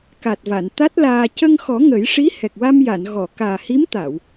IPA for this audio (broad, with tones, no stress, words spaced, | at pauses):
ka˨˩t̚va˨˩˨n t̪a˦˥t̚laː˧ cə˧ŋxɔ˨˩˦ ŋə˨˩˦jʂi˧˥ hɛ˨˩k̚wa˧mja˨˩˨n ɣɔ˨˩˨kaː˨˩ hi˧˥mt̪a˨˩˨w